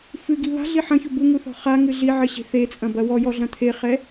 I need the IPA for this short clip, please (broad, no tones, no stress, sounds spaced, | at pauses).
f ɨ ɡ i β a̤ ɮ i ħ ɐ̃ ç o b u ŋ u θ ɔ̤ χ a ŋ ɨ ɮ i ʕ ɘ ɕ e̤ θ e t͡sʼ ɐ̃ b ɐ w ɔ j ɔ ɮ ɐ̃ t̪ʰ e χ ɛ